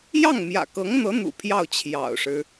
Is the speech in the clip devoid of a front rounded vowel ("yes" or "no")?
yes